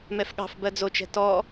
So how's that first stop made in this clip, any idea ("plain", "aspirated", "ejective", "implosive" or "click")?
implosive